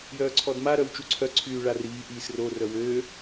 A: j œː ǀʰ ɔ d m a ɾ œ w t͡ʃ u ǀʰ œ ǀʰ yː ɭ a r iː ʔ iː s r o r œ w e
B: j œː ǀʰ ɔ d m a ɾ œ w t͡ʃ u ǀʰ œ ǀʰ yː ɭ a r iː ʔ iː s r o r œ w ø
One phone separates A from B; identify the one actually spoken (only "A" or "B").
B